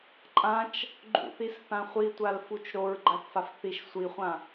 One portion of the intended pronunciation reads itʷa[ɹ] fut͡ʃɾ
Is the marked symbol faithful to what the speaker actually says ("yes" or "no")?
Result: no